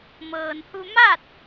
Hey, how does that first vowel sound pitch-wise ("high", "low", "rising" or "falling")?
low